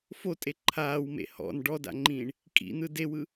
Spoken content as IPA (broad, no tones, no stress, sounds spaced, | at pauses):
f o tʼ e ǃʰ aː w m ḛ h ɔ̰ n ɖ ɔ d a̰ ŋ͡ǃ ĩː ɳ | kʼ ḭ n̪ ɯ d e w ɯ